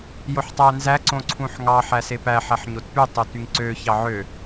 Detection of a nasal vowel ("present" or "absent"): present